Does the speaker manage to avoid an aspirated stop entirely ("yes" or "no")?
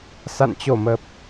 yes